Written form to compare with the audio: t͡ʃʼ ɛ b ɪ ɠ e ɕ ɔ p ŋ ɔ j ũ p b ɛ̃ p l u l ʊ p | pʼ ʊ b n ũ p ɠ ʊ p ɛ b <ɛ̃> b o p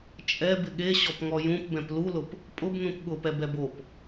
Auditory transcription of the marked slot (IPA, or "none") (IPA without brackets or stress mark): ɛ